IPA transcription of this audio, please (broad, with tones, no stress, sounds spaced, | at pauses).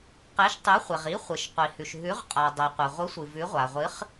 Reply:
q e˨˥ ʃ tˤ ʉ˨˥ χʷ e˩ ʁ i˨˥ χʷ ɨ˩ ʃ qʷ i˩ h ʉ˩ ʃ ɦ ʉ˨˥ ʁ qʼ a˩ dˤ e˩ qʷ e˩ ʁʷ ɨ˨˥ sʷ ɨ˩ v ʉ˨˥ ʁʷ a˩ ʁʷ ɨ˨˥ χ